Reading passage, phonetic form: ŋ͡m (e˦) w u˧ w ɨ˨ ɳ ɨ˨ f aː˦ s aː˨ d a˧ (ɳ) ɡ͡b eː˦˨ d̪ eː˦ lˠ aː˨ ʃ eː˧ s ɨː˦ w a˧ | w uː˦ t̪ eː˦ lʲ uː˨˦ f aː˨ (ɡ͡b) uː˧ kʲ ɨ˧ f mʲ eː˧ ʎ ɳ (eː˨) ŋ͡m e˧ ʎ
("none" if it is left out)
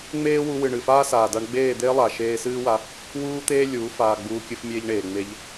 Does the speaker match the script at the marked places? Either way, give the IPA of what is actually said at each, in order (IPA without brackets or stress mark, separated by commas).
eː˦, ɳ, ɡ͡b, eː˨